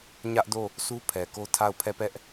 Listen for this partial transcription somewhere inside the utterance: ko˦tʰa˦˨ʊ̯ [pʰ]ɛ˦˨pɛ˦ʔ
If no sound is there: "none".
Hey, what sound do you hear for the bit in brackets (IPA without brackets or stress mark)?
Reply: pʰ